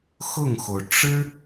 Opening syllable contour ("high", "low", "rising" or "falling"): falling